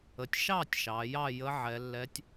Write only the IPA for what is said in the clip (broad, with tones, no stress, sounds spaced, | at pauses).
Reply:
ə˩˧ tʲ ʃ ɑ˥˨ tʲ ʃ ɑ˩˧ j ɑ˥˨ j ə˧˥ ʕ ɛ˩˧ lː ɛ˧˥ tʲ